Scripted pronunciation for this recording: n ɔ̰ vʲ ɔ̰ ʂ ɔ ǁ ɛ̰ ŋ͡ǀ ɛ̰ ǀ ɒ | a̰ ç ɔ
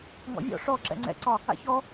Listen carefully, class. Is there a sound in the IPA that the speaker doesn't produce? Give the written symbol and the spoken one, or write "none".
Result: n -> ŋ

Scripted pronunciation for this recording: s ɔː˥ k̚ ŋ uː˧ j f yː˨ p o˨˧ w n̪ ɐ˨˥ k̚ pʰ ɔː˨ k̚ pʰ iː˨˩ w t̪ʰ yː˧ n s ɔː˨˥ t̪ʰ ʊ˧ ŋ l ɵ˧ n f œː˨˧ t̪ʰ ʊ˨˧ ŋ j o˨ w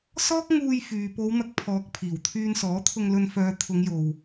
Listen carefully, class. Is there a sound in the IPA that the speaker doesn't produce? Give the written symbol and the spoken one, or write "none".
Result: none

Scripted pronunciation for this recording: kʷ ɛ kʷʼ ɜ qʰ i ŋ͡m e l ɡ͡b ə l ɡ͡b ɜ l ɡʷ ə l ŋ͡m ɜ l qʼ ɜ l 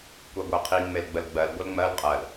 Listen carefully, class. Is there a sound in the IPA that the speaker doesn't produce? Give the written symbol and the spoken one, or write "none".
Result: kʷʼ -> ɡʷ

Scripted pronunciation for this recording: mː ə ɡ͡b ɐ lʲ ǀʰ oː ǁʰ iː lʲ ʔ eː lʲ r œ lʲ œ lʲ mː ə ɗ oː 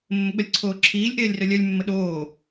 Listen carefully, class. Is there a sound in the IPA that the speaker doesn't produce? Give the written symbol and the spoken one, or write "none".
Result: none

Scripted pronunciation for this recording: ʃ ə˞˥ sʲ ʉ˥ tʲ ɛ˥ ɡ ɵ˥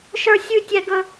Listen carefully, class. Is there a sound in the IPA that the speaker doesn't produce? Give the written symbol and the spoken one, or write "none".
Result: none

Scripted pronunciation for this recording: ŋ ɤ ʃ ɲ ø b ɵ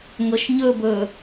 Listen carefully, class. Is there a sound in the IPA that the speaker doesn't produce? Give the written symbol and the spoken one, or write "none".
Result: ø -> ɵ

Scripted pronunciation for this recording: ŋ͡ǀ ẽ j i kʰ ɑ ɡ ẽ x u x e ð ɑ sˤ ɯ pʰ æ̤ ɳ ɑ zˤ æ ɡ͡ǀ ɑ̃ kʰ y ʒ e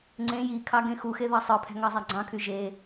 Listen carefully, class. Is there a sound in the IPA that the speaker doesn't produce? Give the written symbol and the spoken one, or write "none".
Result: ɳ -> ŋ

